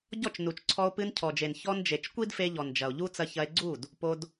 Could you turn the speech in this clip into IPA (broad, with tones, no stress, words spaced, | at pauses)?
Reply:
ɟɔ˦˨t͡ʃnu˨t͡ʃǀʰɔ˧o̯ pɨ˧ncʰɔ˨d͡ʒe˨n çɔ˧n d͡ʒe˨t͡ʃ kʷi˦dfe˧ʎɔ˨nd͡ʒɐ˨o̯ ʎu˦ t͡sɐ˧çɐ˧e̯ɡ͡ǀu˦˨d | po˧d